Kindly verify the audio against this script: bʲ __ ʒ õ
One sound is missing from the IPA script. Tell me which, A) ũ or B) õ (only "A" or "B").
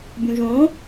A